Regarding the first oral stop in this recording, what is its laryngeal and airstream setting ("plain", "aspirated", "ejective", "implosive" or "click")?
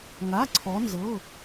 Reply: click